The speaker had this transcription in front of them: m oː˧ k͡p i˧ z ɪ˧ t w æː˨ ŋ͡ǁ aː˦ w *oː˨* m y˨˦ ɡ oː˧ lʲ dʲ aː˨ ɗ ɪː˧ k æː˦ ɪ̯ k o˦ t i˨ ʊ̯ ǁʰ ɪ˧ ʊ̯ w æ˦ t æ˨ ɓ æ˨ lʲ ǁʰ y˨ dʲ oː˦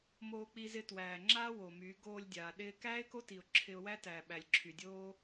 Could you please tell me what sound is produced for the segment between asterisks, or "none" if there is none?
o˨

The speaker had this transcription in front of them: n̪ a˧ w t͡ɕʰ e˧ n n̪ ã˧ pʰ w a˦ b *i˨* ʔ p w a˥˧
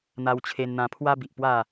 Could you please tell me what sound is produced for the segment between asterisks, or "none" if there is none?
i˨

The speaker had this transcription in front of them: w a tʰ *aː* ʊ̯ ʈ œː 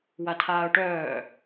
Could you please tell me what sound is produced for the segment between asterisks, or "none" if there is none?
aː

